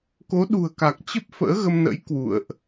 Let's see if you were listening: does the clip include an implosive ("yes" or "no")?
yes